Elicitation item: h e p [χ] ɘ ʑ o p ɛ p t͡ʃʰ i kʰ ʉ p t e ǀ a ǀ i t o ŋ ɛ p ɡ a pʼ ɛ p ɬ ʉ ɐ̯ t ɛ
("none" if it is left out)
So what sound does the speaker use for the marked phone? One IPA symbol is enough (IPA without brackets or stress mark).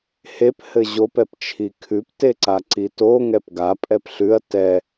h